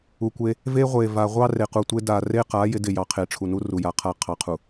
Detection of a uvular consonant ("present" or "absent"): present